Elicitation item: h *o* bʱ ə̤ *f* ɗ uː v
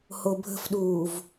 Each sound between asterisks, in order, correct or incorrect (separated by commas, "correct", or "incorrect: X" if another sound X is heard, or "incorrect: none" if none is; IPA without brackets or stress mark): correct, correct